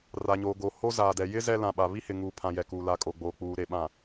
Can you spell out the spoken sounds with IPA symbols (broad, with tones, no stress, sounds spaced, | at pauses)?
r a˨ ɲ oː˨ ɡ o˨ h o˦ z aː˨ d ɛ˨ j ɪ˦ z ɛ˦ l ã˨ ɓ a˨ β i˦ h ɪ˨ ŋ uː˨ pʰ ã˨ j ɛ˨ k uː˨ l a˨˦ kʼ o˨ ɡ͡b oː˨ k͡p uː˨ ɾ e˨ ɓ ã˨